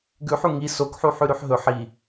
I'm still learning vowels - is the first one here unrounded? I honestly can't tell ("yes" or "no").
no